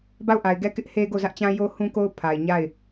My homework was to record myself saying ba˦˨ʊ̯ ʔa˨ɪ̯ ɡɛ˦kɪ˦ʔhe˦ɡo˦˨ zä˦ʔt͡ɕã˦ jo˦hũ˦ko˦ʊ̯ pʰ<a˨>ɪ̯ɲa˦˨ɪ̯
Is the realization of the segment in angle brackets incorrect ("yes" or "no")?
no